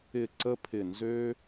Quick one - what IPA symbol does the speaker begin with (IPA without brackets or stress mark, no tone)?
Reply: ɪ